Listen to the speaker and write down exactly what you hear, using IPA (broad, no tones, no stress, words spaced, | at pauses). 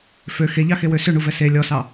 fø xeʎɑxewø søɳuvɛ se lʲɔsɑ